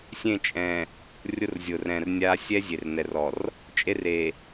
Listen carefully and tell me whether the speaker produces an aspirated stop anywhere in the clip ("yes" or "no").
no